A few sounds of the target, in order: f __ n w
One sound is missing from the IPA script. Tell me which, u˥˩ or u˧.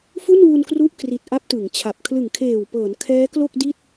u˥˩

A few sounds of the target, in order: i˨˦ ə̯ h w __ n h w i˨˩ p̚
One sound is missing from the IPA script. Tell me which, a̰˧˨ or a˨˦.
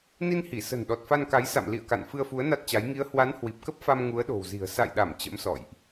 a˨˦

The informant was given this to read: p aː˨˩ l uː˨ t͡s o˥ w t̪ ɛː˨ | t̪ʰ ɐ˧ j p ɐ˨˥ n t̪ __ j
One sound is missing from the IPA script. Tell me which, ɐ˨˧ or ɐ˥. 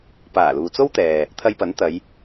ɐ˨˧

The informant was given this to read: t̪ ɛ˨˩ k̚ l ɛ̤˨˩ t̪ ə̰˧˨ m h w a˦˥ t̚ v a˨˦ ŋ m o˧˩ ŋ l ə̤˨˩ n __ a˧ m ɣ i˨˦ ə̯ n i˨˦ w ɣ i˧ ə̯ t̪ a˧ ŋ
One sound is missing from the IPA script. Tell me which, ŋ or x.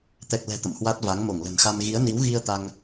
x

